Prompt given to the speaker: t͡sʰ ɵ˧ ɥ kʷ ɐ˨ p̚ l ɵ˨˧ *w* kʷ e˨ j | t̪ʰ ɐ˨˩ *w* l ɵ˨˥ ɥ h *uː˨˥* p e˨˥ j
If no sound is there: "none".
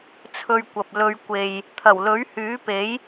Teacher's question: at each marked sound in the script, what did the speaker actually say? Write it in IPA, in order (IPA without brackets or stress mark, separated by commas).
ɥ, w, yː˨˥